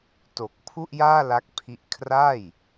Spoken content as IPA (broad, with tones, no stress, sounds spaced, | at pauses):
t o˨˩ k̚ pʰ u˥˩ ʔ j aː˥˩ l a˦˥ k̚ pʰ i˦˥ ʔ kʰ r a˥˩ j